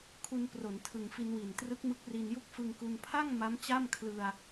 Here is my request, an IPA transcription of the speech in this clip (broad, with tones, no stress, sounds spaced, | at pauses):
kʰ u˧ n p r o˩˦ n tʰ ɯ˨˩ ŋ f i˧ n w i˨˩ n t r ɯ˦˥ k̚ m ɯ˦˥ k̚ r i˧ n j u˥˩ k̚ f ɯ˧ ŋ k u˧ n pʰ a˥˩ ŋ m a˦˥ m t͡ɕ a˥˩ m kʰ l ɯ˧ a̯